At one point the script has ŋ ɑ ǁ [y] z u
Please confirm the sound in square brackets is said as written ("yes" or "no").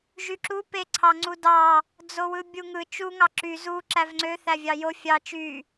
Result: yes